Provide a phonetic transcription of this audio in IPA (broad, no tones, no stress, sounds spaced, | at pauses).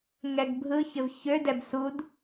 ŋ ɛ ɡ bʱ ɯ ç ɘ v ç ø d ɛ b s u d